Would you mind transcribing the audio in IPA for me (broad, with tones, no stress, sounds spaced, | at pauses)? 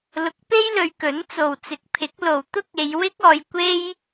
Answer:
l ʊ˨˥ k̚ p e˥ j l ɵ˨˧ ɥ k ɵ˨˥ n t͡s o˨ w t͡s ɪ˨˥ k̚ pʰ ɪ˨˥ k̚ l o˨ w t̪ ʊ˥ k̚ e˨˧ j w ɪ˥ k̚ ɔː˨˧ j kʷ e˥ j